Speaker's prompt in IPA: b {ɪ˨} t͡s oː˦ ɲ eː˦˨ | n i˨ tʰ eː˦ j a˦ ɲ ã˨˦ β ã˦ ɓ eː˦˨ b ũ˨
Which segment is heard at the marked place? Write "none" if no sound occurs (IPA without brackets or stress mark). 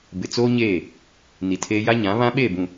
ɪ˨